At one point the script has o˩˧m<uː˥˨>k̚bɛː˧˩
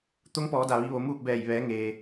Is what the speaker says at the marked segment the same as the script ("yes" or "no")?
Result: yes